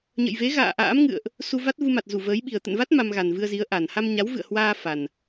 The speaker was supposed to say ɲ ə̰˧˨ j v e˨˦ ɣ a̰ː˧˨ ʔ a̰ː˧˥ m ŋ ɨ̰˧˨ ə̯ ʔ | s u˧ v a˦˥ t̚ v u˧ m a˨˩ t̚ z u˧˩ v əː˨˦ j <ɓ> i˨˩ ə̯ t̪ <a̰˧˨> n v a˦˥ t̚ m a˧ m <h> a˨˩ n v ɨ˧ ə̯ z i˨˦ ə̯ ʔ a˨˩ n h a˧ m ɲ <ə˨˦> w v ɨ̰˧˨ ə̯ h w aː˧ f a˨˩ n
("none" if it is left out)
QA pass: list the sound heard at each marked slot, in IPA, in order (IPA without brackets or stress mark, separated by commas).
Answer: ɓ, ə̰˧˨, ɣ, a˨˦